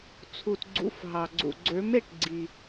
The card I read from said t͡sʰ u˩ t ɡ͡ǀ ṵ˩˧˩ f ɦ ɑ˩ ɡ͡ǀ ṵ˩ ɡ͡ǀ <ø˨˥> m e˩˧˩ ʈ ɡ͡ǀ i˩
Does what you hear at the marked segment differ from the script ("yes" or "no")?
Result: no